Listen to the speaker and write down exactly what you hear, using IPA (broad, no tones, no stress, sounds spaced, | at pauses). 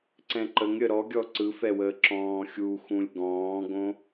ǀ ɛ̃ ǃ ə ŋ ɾʲ ə ɾ ɔ ɡʲ ɔ ǀ ɯ f ɛ w əː ǁ ɔ̃ː xʲ u x ũ lʲ ɡ ɔ̃ː ɡ õ